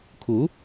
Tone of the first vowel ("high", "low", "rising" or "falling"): rising